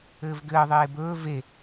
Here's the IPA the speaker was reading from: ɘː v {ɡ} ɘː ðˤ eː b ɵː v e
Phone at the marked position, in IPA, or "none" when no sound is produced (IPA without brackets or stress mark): ɡ